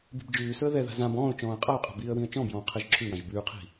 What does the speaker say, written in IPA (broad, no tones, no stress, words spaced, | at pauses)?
bi̤bd͡ʒʉːsɵə̯ ðɛða̤ zãb ɔ̃ːʊ̯t͡ʃɔ̃ːə̯ qʼaʊ̯qʼɛ̤ biːə̯wĩə̯t͡ʃɔ̃bjɔ̃ː qʰɛʒǁʰʉwãʒ bʉːqʰi̤